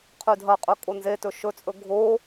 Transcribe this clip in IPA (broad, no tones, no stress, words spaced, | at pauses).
qʰʉdʱɐqʼɵ kʼonzetɵ ʃɵt͡sʼɵ ɡʱo